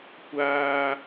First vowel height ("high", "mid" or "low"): low